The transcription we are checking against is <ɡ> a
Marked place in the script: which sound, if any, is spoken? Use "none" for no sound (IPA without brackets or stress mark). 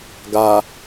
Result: ɡ